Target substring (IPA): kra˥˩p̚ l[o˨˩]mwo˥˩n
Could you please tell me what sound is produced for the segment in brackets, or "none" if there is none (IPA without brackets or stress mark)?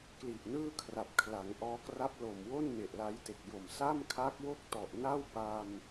o˨˩